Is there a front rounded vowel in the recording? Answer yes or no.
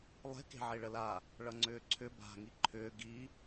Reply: yes